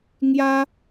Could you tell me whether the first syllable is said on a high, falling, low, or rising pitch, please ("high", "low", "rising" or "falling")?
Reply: high